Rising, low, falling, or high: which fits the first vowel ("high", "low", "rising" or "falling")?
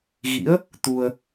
rising